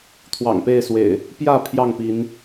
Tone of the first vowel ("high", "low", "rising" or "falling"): low